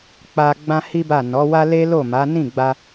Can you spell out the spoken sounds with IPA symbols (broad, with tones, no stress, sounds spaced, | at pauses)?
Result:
k͡p a˧ ɡ͡b ã˦ h i˦ b a˦˨ n ɔ˨˦ w a˦ l e˦ l o˦˨ m a˨˦ n ĩ˦˨ ɡ͡b a˧